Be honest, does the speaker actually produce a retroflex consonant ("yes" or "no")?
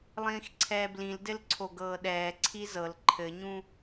no